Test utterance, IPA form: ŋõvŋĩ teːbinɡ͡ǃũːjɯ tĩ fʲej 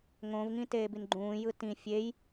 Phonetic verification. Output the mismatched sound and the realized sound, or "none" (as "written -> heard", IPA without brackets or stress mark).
none